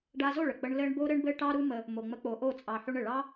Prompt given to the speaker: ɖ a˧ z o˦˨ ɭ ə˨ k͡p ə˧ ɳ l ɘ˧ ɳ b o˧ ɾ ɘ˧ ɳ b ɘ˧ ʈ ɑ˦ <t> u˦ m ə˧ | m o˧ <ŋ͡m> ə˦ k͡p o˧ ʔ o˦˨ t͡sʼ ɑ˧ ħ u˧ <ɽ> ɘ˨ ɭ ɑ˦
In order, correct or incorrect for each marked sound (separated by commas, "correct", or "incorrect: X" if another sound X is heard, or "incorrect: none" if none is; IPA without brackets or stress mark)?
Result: incorrect: ɾ, correct, incorrect: ɳ